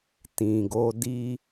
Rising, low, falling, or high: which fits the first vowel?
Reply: low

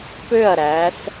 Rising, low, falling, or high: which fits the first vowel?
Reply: falling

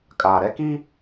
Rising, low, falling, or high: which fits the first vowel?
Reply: low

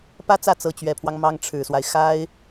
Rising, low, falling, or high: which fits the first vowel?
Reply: high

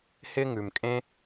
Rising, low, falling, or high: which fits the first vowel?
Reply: high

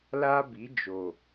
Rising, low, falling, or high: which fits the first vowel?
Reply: high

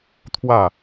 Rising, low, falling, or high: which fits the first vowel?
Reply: falling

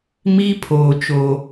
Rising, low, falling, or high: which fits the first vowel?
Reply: high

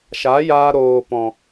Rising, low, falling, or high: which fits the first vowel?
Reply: rising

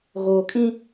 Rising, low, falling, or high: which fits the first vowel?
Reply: low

